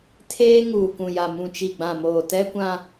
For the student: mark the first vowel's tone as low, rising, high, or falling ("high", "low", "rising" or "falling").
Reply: high